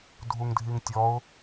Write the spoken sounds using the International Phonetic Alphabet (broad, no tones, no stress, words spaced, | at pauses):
dʱuŋdʱiŋtʲɔʊ̯